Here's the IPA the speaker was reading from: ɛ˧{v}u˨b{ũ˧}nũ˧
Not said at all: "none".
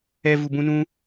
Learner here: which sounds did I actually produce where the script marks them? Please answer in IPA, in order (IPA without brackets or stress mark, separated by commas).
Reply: v, ũ˧